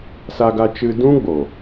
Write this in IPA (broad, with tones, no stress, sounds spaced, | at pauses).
s a˧ ɡ a˧ t͡ʃ ɨ˧ d ũ˦ ɡ͡b o˨